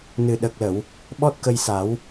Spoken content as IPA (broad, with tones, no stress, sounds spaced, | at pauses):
n ɨ˨˩ ɗ ə˨˩ k̚ l ə˨˩˨ w | ɓ ɔ˦˥ t̚ k ə˧ j s a˨˩˦ w